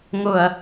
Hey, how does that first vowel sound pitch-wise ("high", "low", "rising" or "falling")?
low